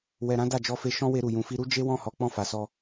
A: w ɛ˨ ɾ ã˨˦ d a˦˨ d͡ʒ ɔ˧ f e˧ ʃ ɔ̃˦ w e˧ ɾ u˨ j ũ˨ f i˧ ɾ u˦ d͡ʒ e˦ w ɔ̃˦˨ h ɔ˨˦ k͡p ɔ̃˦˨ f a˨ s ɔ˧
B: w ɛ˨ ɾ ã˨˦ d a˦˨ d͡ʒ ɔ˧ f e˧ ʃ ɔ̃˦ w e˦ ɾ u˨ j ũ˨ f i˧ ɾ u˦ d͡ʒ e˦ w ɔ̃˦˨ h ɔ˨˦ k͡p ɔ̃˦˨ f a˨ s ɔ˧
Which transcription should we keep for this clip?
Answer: A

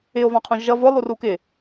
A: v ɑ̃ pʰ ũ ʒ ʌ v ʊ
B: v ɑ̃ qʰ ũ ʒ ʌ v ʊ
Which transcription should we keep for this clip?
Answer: B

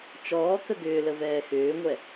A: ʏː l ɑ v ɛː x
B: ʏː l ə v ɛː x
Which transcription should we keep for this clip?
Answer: B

